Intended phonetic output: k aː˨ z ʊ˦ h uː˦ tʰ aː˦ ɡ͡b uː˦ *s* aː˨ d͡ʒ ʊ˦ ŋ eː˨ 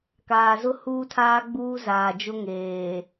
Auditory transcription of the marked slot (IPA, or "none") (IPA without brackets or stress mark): z